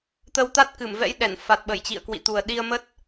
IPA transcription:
t̪ə˧wt̪a˦˥t̚kɨ˧˩m vɛ̰˧˥jɗɛ˧˩n fa˨˩t̚ ɓə˧˩jt͡ɕḭ˧˨ə̯kwḭ˧˨t̪u˨˩ə̯ ɗi˧ə̯mə˦˥t̚

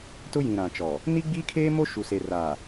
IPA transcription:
tʊ˦jĩ˨ɾã˨t͡ʃɔ˨ | ni˦ɡ͡biː˦kʰeː˦mo˦ ʃu˨se˨ ra˨

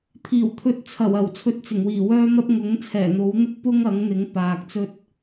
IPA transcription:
t̪ʰiː˨˩wt̪ʰɵ˧t̚t͡sʰɐ˨˩wɐ˨˩w t͡sʰɵ˧t̚t͡sɪ˨˩ŋwiː˨˩ wœː˥n̪ɐ˥p̚ ŋʊ˨˥ŋ t͡sʰɛː˨˩n̪o˨˥w n̪ʊ˥k̚ pʊ˥ŋɐ˨˥ŋn̪ɪ˨˥ŋ paː˨k̚ t͡sɵ˧t̚

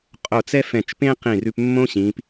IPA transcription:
qʼo˧˩t͡sɛ˥fɛ̃˧˩t͡ʃpẽ˥ qĩ˧˩rʉ˧pmːõ˥ ɕĩ˩˧p

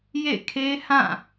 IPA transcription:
jḛ˦˨kʰe˦hã˦˨

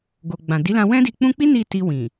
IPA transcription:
ɡo˨ ɡ͡bã˨ di˨˦lã˧ wɛ̃˦di˧k͡pũ˦ k͡pi˦ ni˦˨ti˧wĩ˨

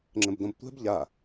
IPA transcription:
ŋ͡ǁə̃bdõbtʷɛ̤b ʎa

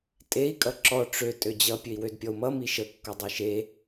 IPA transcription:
tʼei̯ kʼʌǁɔ ʈ͡ʂø tʼød͡ʑʌ pʲøi̯wødpʲɔu̯mʌ miʃə kːʌdˤiʃe

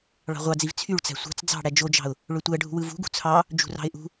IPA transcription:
ɭɑ̤ʁʷɑd͡ziv t͡sʰyɭt͡sæ̤ sʷɑ̤t͡s d͡zɑ̤ ɽæd͡ʒod͡ʒɑ̤ʊ̯ | ɭøtʷæɖʱṳwɯ vṳɡṳ t͡sʰɑ | d͡ʒṳrɑ̤ɪ̯ʔṳ

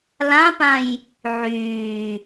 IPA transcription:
lãpãj | ʕyː

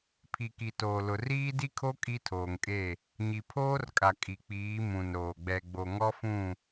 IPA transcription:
pʰi˨ki˨toː˨lʊ˨ riː˦di˦kʰo˦ kʼi˦tʰoː˨ŋkʼe˦˨ | ɲi˨ pʰoː˦rkʼa˨ kʼi˨k͡piː˨˦ mũ˨nɾoː˨ ɡ͡bɛ˨ɡ͡bo˨ŋɔ˦fũ˦˨

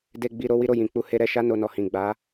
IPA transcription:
de˨ɡ͡bi˨ ɾo˨˦wi˦ɾo˦˨jĩ˨ k͡pu˨ he˧ɾɛ˧ʃa˦ no˧nɔ˧hĩ˨ ɡ͡ba˨˦

